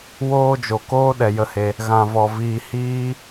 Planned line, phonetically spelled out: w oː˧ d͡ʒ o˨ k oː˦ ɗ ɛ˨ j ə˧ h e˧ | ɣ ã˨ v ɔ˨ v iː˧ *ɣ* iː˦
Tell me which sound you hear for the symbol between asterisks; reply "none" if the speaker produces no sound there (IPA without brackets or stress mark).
h